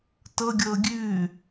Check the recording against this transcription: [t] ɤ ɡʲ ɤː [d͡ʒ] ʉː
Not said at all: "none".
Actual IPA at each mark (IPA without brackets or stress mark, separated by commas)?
t, ɡʲ